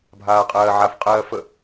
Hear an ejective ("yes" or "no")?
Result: yes